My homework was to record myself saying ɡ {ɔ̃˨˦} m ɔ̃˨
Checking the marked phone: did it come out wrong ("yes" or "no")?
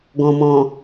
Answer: yes